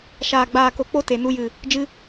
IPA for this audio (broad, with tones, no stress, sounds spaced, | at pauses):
ʃ aː˨ ɡ͡b aː˨ k o˨ k͡p o˧ t e˨ n u˧ j ɨ˨ | d͡ʒ ɨ˧